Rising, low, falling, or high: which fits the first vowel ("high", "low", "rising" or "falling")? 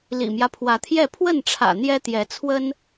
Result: low